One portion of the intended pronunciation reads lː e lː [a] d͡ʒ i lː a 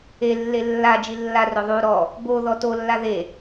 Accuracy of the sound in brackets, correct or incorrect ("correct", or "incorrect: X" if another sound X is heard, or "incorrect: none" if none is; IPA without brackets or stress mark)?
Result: correct